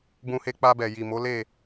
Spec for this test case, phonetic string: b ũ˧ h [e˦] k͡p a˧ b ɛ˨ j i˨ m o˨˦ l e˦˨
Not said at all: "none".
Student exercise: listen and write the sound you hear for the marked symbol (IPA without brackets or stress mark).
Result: e˧